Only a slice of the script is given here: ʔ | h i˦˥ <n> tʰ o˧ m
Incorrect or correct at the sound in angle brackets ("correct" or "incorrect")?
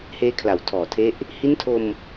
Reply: correct